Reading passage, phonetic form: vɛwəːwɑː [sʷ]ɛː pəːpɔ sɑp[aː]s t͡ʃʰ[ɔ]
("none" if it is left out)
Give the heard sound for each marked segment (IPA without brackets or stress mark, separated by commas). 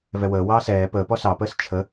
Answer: s, əː, ə